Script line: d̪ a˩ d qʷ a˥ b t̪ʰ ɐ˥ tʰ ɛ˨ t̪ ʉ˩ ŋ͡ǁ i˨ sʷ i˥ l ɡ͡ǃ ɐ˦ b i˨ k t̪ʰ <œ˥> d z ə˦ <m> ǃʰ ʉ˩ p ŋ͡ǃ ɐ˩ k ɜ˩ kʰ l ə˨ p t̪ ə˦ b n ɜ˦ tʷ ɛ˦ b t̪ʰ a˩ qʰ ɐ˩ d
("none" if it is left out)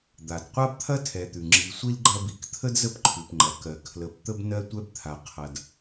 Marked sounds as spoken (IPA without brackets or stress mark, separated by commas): ə˥, p